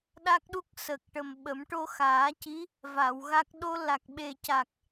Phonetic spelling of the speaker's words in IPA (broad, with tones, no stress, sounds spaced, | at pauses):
ɗ a˦˥ k̚ ɗ u˦˥ k̚ s ə˨˩ k̚ ʈ ə˨˩ m ɓ ə˨˩˦ m ʈ o˧ x aː˨˩˦ c i˧˥ | v a˨˩˨ w ɣ a˦˥ k̚ ɗ o˧ l a˨˩ k̚ ɓ e˨˩ c a˨˩ k̚